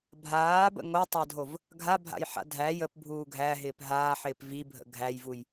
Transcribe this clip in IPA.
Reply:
bʱ aː b ə̰ ŋ o tˤ æ dʱ o v | ɡʱ a bʱ a̰ j ħ a̰ dʱ æ j ə p bʱ uː ɡʱ æ ɦ ɪː p ɦ aː ħ ɪː p v i bʱ ə̰ ɡʱ æ j v u j

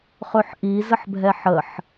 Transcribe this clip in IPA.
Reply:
χ ɵ ħ ʔ i z ə ħ bʱ ɛ ħ ə ħ

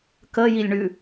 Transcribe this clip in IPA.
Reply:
k ə j i lʲ ɳ ʉ

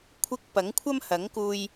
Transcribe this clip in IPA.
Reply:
kʷʰ ɪ˨ k̚ p ɐ˨˥ ŋ kʷʰ ɐ˥ m h ɐ˨˥ ŋ k uː˧ j

